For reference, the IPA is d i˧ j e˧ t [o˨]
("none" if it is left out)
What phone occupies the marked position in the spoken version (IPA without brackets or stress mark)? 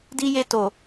o˨